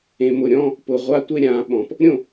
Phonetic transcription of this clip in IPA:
ẽ˨ m ʊ˨ ɾʲ ɔ̃˦ | p ʊ˨ ʁʷ a˦ tʷ e˦ ɾʲ ã˨˦ ɓ ɔ̃˨ p | ɾʲ õ˦˨

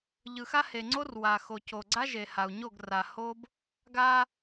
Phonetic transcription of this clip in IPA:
ʎ ɯ˨ x a˦ h e˨ ŋ͡ǀ o˦ r w a˨ x o˨ c o˨ ɡ͡ǀ a˦ ʒ e˨ h a˨ u̯ ɲ o˦˨ ɡ r a˨ h o˦ b | ɡ a˦

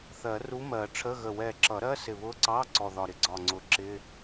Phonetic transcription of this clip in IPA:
θ ɜ˨˩˦ r u˧˥ m ɜ˨˩˦ ʈ͡ʂʰ ə˧˥˧ ɣ ə˧˩ w ɛ˧˩ ǁ ʌ˨˩˦ ɾ ɜ˧˥˧ s ɪ˧˩ β ʊ˧˥ ǀ ɑ˧˥˧ ǀ ɔ˧˩ ð ɒ˧˩ ɾ ɪ˧˩ ɡ͡ǀ ɒ˧˩ ŋ͡ǀ ʊ˨˩˦ ǁ ɪ˧˥˧

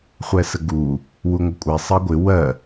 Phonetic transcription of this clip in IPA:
χʷ ɛ s ə ɡ u | w u ŋʷ ɪ kʷʼ ɛ sˤ ɜ ɡʷ ɪ w ɜ

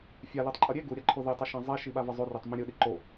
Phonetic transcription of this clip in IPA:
fʲ a l i tˤ ǃʼ ʌ ɾʲ e ɡ u ɾʲ a ǃʰ o ð e tˤ ɯ ʃ ã zˤ e ʃ i ɓ a v ʌ zˤ o r e tˤ m ĩ ɾʲ ɯ ɗ i ǃ o

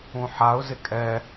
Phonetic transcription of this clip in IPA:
ũ ħ a ʊ̯ z ɪ kʼ ɛ

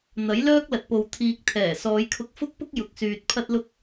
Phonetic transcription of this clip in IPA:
n̪ ɐ˨˥ j l œː˥ k̚ l ɐ˨ t̚ p o˨ w t̪ʰ iː˨ k̚ t̪ʰ ɛː˨˩ s ɔː˨˧ j kʰ ʊ˧ k̚ f ʊ˥ k̚ p ʊ˥ k̚ j ʊ˨ k̚ s yː˨ t̚ pʰ ɐ˥ t̚ l ʊ˥ k̚

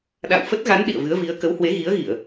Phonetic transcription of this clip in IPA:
ɗ a̰˧˨ w f ə˦˥ t̚ ɣ a˨˦ n ɗ ḭ˧˨ ə̯ v ɨ˨˦ ə̯ v i˨˦ ə̯ k ə˨˦ w h w e˨˦ ɣ i˨˦ ə̯ ɣ i˧˩˨ ə̯

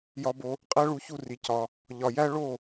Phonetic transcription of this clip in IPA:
j ɒ˧ b o˧ | qʼ æ˦ ɭ u˧ ç u˦˨ r i˨ c ɒ˧ | ʎ ɒ˨ j æ˦ ɭ o˦˨

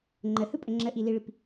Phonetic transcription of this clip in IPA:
ŋ͡ǃ ə h ɯ pʼ ə ŋ͡ǁ ə ʔ i l i ɭ i p

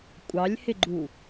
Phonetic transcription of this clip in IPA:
kʷʼ ɑ lʲ h ɪ ɡ͡ǃ u

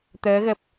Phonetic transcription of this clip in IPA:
t̪ əː˨˦ ɣ ə˨˩ p̚

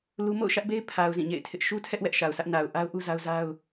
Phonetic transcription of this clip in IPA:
l u˦ m o̰˦˨ ʊ̯ ʃ ä˦ ʔ b e˦ ɪ̯ pʰ a˨ ʊ̯ z ĩ˦˨ ɲ ḛ˦˨ ɪ̯ tʰ ɪ˦ ʔ ʃ u˦ tʰ ɛ˦ ʔ w ɛ˦ ʔ ʃ a˨ ʊ̯ s ä˦ ʔ n a˨ ʊ̯ ʔ a˦ ʊ̯ ʔ u˦ z a˦ ʊ̯ z a˦ ʊ̯

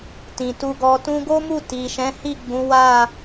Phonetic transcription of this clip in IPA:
t ĩ˨ t u˧ ɡ ɔ˧ t ũ˧ ɡ o˦ m u˦˨ t i˨ ʃ ɛ̃˨˦ h i˦˨ ɡ͡b ũ˨˦ w a˦˨

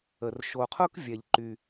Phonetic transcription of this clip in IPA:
ə˩ r ʃ o˩ qʰ ʊ˧ k vʲ ɛ˩ ʎ ǃ y˩

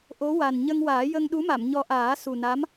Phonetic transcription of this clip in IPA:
ʔ o˧˥ w a˨˩ n ɲ ə˧ ŋ w aː˨˩˦ j ə˧ ŋ ɗ u˧˥ m a˨˩˨ m ɲ ɔ˧ ʔ aː˨˩˦ s u˨˩ n a˧˥ m

